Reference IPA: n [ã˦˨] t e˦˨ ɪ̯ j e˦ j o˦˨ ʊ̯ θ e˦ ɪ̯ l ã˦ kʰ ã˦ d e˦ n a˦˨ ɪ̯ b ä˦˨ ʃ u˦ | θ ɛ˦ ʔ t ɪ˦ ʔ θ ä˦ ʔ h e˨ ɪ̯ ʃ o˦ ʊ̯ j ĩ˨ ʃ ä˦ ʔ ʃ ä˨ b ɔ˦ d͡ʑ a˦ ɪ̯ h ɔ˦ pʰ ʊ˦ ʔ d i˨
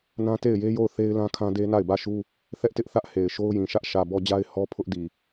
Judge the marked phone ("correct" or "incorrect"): incorrect